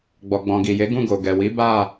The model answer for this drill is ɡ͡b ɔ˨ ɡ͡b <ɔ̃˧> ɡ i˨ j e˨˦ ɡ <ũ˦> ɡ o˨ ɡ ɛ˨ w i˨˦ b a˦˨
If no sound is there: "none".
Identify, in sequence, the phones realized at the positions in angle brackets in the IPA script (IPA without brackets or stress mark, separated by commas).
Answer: ɔ̃˨, ũ˦˨